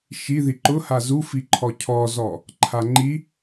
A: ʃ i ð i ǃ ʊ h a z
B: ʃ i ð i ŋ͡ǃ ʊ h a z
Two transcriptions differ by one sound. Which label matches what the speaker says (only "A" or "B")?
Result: A